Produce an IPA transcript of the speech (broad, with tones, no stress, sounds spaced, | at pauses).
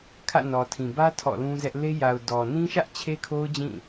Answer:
kʰ ä̰˦˨ n ɔ˨ tʰ ĩ˨ b ä˦ tʰ ɔ̰˦˨ l ũ˦ z ɛ˦ ʔ l e˦ j a˨ ʊ̯ d ɔ˨ n ĩ˦ ʃ ä˦ ʔ t͡ɕʰ e˦ kʰ o˦ ʊ̯ d͡ʑ ĩ˦˨